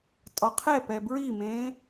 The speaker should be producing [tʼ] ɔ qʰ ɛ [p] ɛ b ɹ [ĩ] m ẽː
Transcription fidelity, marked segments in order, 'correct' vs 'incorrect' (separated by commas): correct, correct, incorrect